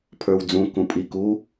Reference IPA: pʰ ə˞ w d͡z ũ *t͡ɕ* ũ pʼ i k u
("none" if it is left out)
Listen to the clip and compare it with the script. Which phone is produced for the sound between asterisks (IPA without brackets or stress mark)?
k